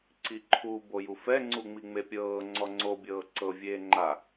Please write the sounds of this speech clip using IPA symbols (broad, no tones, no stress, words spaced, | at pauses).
ǀiǃʰu bojufɛ ŋ͡ǀuŋ͡miŋ͡mepʲɤː ŋ͡ǀɔŋ͡ǀo bʲɤːǀɤ vʲeːŋ͡ǃa